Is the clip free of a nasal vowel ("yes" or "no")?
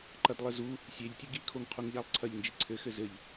yes